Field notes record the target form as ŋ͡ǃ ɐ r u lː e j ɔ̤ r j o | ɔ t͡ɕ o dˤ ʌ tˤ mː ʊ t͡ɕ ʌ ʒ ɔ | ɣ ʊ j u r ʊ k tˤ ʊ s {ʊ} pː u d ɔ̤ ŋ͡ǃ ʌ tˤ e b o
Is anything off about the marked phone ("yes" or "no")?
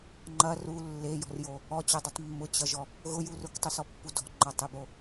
yes